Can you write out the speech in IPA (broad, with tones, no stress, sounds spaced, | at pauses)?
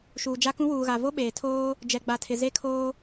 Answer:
ʃ uː˨ d͡ʒ a˦ k ũ˦ w uː˨ ɣ a˨ v o˦ ɓ eː˨ tʰ oː˦ | d͡ʒ ɛ˨ ɡ͡b a˨ tʰ ɪ˨ z e˦ kʰ oː˦